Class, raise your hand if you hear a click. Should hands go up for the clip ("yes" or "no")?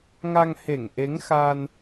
no